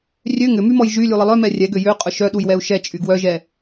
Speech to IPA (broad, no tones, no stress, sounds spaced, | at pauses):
rʲ ø ŋ ʏ m y m ɔ j ʒ y lʲ u lˠ ə lˠ œ m ɛ rʲ ɛ ɡ ø j ø qʼ ʊ ʃ œ ɗ u j w ɛ u̯ ʃ ɛ t͡ʃʼ y ɡ w œ ʒ ɛ